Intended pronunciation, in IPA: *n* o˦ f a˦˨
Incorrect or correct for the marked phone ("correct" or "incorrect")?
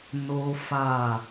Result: correct